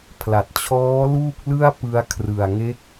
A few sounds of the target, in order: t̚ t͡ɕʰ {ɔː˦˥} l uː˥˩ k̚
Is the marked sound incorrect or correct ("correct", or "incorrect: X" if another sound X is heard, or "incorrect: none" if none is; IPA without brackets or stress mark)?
correct